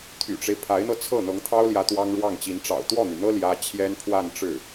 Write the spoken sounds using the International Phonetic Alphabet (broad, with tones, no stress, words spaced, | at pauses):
t̪ʰy̰˨˩ʈ͡ʂe˦ɪ̯ pʰa˧˥ɪ̯n̪ɤ˧t͡sʰɤ˥˩ n̪ɤ˧˥ŋt̪ʰɑ˥ʊ̯ljä˧˥ t̪wɑ˥ŋ ɻwɑ˥˩ŋt͡ɕi˧˥n ʈ͡ʂɑ̰˨˩ʊ̯t̪wɔ˥˩n̪y˩n̪ɤ˥ ljä˥ t͡ɕʰjɛ˥n pʰwa˥˧nʈ͡ʂɻ̩˥˩